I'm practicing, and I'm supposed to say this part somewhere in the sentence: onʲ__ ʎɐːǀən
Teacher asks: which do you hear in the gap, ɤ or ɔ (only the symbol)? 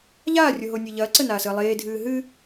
ɤ